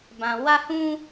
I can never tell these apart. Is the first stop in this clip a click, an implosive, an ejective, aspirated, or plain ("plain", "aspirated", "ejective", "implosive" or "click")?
plain